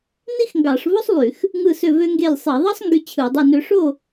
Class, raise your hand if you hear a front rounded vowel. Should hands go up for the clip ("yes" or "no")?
yes